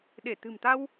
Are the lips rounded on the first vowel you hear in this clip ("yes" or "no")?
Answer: no